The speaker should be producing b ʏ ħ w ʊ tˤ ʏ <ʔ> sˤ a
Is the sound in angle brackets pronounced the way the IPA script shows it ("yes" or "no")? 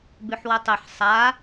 no